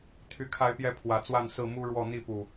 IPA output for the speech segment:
t̪ʰy˨˩kʰa˨˦ɪ̯pjɛ˨˦ pʰwä˨˩t͡swa˥˨nsɹ̩˥˨ mu˦ɻwɔ˥˨ n̪i˥˨pu˨˩

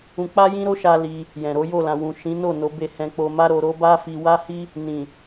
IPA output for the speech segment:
ũ˧k͡pa˦jĩ˦ɾo˦ ʃa˦li˧ | jɛ̃˨ɾo˨˦ jo˦˨lã˨ wũ˨ ʃĩ˨˦no˦˨ no˨˦be˧ hɛ̃˧k͡po˧ma˦ɾo˧ ɾo˦ba˦ fi˧wa˦hi˦ | nĩ˨

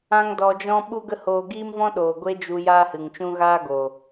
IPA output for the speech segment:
ã˦ŋ dɔ˧d͡ʒɔ̃˦ ɓu˦ɡə˦hoː˧ ɡiː˦mvɔ̃˦ɗoː˨ ɡʷe˦d͡ʒu˧ jaː˦hɨ˨ŋt͡ʃũ˦ ɣaː˦ɡo˨

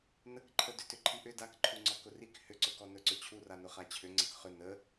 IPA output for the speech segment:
nəkǃʰə dʏtʏǃʰiʔʏ dakǃʰuŋ͡ǀɔ kʊrik hʏǀʊkɔ nɵǀɵt͡ɕʰura nʊχat͡ɕʰʏ ŋ͡ǀəkχʏ nə

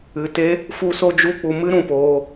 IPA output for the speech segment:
ɨ˨te˦ | fu˦so˦d͡ʒu˦k͡pu˧ mɨ˦ɾũ˨poː˧

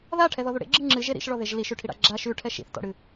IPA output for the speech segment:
ðaʈʰɛðɔðu ɽḛɡ͡ǁɨ ŋ͡ǁɨʒe ɾḭʃɭɔðeʒ liʃʉʈʰiɽa̰ ɡ͡ǁa ʃʉʈʰɛ ʃḭθtɔ̰ɽɨ

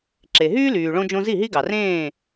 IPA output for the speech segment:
ǁe˩ɦyː˥lyː˩ ɭõ˧d͡ʒõ˧ zi˥˩ɦi˥ɡɑ˩rẽː˥˩

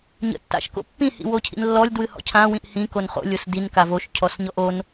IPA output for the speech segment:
ɲə̰tːa̰ʃko̰pːĩ hḭwocʰḭnlːɔlʲ dwɨhɔ̰cʰã wĩʔhĩ konχo̰ lʲosdin kavoʃ cʰɔsɲɔʔon

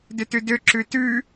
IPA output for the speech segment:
døtʉdø ǁʉtʉ

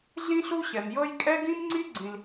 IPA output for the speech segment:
ɮĩ˦ɬu˦ ɕɛ˩mjɤ˦j kʼɛ˥ɡĩ˥mŋ͡ǀi˥ ɡ͡ǀĩ˨l

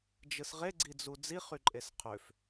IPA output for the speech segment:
d͡ʒɯsʁeɡ͡ǀid͡zu d͡ziχyǃʼes qʰøf

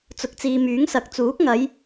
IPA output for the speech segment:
t͡sʊ˨k̚t͡siː˨myː˨˥ŋsɐ˨˥k̚ t͡suː˨˥k̚ŋɐ˨˧j

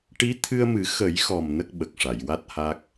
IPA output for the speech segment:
ʈi˧˥t̪ʰɨ˧ə̯mɨ˨˩˦ xə˨˩˦jxɔ˨˩m nə˦˥k̚ɓə˨˩k̚ʂa˨˩˨j wa˦˥t̚ha˦˥k̚

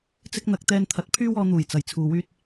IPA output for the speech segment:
t͡sɪ˥k̚n̪ɐ˨˥k̚ t̪ɛː˧nt̪ʰɐ˨˥t̚ pʰyː˥wɔː˧ n̪uː˨˩j t͡sɐ˨˩j t͡sʰuː˨ wyː˥t̚

